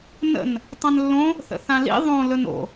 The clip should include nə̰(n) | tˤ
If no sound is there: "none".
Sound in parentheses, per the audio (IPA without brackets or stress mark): n